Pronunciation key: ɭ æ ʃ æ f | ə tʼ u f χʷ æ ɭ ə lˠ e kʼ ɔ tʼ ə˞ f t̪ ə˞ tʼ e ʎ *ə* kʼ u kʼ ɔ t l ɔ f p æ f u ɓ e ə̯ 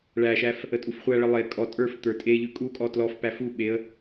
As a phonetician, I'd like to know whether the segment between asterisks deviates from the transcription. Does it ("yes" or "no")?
yes